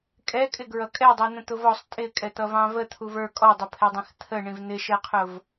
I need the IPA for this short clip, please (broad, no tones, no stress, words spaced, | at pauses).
kʼɛkʼɪɡɹʌ kʼɛdˤi n̪ə̃t̪ʊvɔsˤ tʼɪkʼɛt̪ʌvɑ̃ və t̪ʰuvə˞ kʼɔdˤʊpʰɛdˤĩx t̪ʰə ɳĩvn̪ɪʃɛqʰʊv